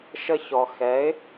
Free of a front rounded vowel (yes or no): yes